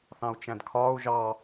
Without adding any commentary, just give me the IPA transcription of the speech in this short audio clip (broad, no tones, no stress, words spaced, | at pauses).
θɑ̃u̯t͡ʃæ̃dkʰɒːu̯ ʒɑ